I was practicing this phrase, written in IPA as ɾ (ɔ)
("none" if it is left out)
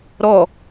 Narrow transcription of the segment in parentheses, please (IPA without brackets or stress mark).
ɔ